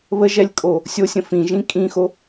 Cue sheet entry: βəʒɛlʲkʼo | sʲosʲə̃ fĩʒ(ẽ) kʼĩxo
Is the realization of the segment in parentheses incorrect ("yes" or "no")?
yes